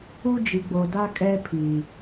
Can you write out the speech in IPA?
u˦ d͡ʒ i˨ ɡ͡b o˨ d a˦ kʼ ɛ˦ pʰ i˨

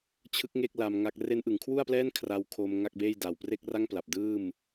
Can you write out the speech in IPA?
t͡ɕʰ ɯ˦˥ k̚ ŋ e˥˩ k̚ l a˧ m ŋ a˦˥ k̚ r e˦˥ n ʔ ɯ˩˦ ŋ kʰ w u˥˩ a̯ p l ɛː˥˩ n kʰ r a˦˥ w kʰ o˧ m ŋ a˥˩ k̚ b eː˥˩ j d a˨˩ w p r e˥˩ k̚ r a˥˩ ŋ p l a˨˩ p̚ d ɯː˥˩ m

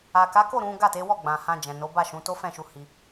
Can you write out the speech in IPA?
a˨ k a˨˦ k o˦˨ ɾ ũ˨˦ ɡ a˦˨ t e˨˦ w ɔ˦˨ ɡ͡b ã˨ h ã˧ d͡ʒ ɛ̃˨ n o˨˦ b a˦˨ ʃ ũ˨˦ t o˦ f ɛ̃˦˨ ʃ u˧ h i˧

